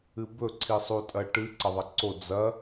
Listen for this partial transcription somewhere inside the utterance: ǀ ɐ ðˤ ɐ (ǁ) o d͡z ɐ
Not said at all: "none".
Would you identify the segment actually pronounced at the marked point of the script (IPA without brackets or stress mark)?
ǀ